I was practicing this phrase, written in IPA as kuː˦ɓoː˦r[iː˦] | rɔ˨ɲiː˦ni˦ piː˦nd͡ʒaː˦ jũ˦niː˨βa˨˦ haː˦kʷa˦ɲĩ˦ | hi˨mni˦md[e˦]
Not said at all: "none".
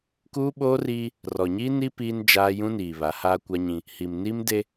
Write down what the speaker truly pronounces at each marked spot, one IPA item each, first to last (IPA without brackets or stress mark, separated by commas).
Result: iː˦, e˦